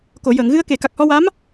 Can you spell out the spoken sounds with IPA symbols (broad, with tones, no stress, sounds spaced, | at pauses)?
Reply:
k o˨˩˨ j əː˨˩˨ ŋ ɣ ɨ˧ ə̯ k e˨˩˨ k a˨˩ k̚ h ɔ˧ w a˧˥ m